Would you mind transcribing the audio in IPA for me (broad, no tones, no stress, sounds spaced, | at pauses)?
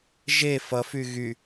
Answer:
ʒ e f ʌ f y ɣ y